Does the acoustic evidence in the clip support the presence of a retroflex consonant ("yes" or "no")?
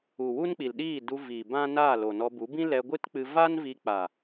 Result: no